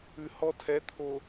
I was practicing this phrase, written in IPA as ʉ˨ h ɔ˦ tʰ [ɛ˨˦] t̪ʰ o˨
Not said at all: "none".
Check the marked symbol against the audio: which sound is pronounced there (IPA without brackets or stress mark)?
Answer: ɛ˨˦